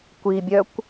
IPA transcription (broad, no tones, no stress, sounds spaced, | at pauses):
kʷ i bʲ œ kʷ